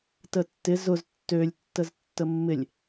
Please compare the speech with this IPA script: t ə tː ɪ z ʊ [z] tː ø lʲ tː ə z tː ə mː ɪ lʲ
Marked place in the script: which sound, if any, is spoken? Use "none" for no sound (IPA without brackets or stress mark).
z